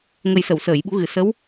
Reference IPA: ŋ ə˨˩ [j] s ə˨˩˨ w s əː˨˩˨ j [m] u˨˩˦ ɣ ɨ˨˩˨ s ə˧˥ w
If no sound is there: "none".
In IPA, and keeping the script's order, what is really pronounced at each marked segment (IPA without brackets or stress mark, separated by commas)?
j, ɓ